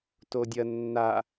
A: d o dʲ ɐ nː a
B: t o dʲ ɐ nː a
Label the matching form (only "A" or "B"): B